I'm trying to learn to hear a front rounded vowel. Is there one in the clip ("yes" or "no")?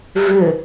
yes